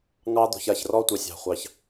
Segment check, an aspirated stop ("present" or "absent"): absent